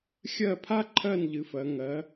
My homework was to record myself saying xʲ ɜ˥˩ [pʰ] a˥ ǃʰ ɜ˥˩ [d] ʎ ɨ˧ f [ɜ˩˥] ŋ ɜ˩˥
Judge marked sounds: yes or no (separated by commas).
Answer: yes, no, yes